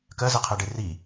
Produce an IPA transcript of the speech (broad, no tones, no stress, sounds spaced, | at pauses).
k ɜ z ɛ qʰ ɛ ɖ e r i